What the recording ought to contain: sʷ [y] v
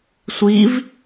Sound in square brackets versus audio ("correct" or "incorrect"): incorrect